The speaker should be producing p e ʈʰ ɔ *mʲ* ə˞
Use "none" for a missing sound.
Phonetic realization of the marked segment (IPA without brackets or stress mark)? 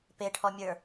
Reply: mʲ